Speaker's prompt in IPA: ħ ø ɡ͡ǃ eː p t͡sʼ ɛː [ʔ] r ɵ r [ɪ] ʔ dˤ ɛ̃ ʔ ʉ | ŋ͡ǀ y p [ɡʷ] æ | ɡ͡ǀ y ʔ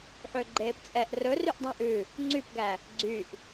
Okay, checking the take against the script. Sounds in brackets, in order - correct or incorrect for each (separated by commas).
correct, incorrect, incorrect